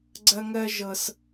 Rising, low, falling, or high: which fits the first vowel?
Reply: high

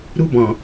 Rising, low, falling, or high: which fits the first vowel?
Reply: high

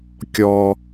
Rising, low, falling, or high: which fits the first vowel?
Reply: low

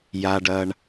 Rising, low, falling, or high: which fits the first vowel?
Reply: low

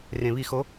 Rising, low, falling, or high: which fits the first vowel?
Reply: low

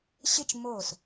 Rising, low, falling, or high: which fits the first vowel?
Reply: falling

